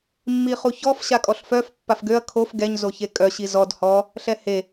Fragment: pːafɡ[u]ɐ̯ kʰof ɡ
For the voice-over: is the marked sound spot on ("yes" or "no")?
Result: no